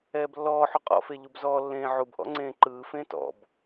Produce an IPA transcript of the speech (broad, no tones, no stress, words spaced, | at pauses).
ɛːblːɔːħu qʼɔ̰fe ʎubzɔːlːẽː ʕubʔɔ̰ ŋ͡ǀẽːǃɯːfẽː tɔ̰b